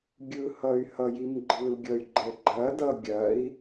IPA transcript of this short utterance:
ɡʲ ɯ h ʌ y̯ h ʌ j i m ɡ͡ǃ ɯ l ɡʲ ʌ y̯ ɡ͡ǃ ɛ ɡ͡ǃ ɐ d ʌ ɡʲ ɐ i̯

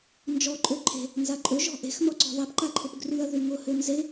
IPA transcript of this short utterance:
n d͡ʒ ɔ ǃʼ ø ǃʰ e̤ | n z a ǃʼ ø ʒ ɔ̤ ʔ e̤ x n̪ ɔ ǀ ɔ̤ ðˤ e p ǃ a ǃʰ ʊ p ɡ r y ɐ̯ ð y ŋ ʊ h ø n z e

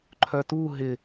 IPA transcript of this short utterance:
ǃʰ œ t u ɦ ɪ

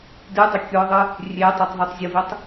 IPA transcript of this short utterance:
d ɨ dˤ ʊ kʲ ʊ ðˤ ɨ | rʲ e tˤ i tˤ ðˤ ɨ tˤ zʲ ʊ v i tˤ

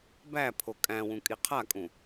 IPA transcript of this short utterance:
b æ pʰ o kʼ æ̃ w ũ kʼ i qʰ a kʼ ũ

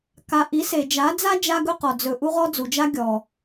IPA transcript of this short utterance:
k a˨ ʔ i˨˦ s e˨ d͡ʒ a˨˦ d͡z a˦ d͡ʒ a˦ ɡ ɵ˦ q ɔ˨ d͡z ɵ˨ ʔ u˦ ʁ ɔ˦ d͡z u˨ d͡ʒ a˦ ɡʲ ɔ˨

